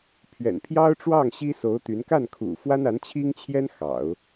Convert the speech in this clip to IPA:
pʰ ɥ ɛ̰˨˩ n pʰ j ɑ˥ ʊ̯ ʈ͡ʂ w ɑ˥˩ ŋ ɕ i˥ s o˧˥ ʊ̯ t̪ y˧˥ n k a˥˩ n kʰ ṵ˨˩ f w a˥ n a˧˥ n t͡ɕʰ i˥ ŋ t͡ɕʰ j ɛ˥ n x ɑ̰˨˩˦ ʊ̯

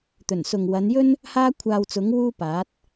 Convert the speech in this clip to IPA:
t̪ ɵ˨˩ n s ʊ˨ ŋ w ɐ˨˧ n j ɵ˥ n | h aː˥ kʷʰ aː˧ w t͡s ʊ˨˥ ŋ w uː˥ p aː˨˥ t̚

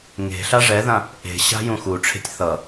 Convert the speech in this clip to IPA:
ŋ e̤ ɬ a ʐ ɛ ð ã | ʔ e̤ ɕ a̤ j ũ x u ʈ͡ʂʰ e̤ tʲ θ ʌ

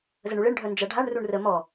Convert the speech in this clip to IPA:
z ə ɳ u ɭ e ɳ ɖʱ œ n d͡ʒ a ɖʱ a ɳ r u ɳ r ə m ɔ

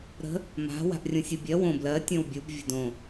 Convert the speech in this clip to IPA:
ɾ ə̤ | m a̤ w a̤ ʔ rʲ ũ sʲ u bʲ ɜ w õ b l ɜ tʲ õ w bʲ u b vʲ ə̤ d õ

